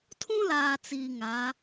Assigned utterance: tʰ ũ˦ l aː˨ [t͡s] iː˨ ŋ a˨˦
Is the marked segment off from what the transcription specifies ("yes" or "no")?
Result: no